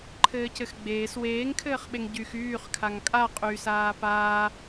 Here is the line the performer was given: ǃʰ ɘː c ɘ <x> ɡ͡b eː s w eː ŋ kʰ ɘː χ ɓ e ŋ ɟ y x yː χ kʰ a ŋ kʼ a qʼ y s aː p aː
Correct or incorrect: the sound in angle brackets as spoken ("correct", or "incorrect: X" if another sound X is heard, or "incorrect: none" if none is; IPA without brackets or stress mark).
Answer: correct